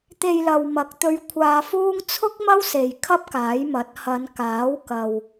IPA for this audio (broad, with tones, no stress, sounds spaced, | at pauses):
t̪ e˧ j l ɐ˨ w m ɐ˨˥ k̚ t̪ ɵ˧ ɥ kʷʰ aː˧ f uː˥ ŋ t͡sʰ ʊ˥ k̚ m ɐ˥ w s e˨ j kʰ ɐ˥ p̚ k aː˨˥ j m ɐ˨˥ t̚ h ɐ˨˧ n k aː˨˥ w k ɐ˨ w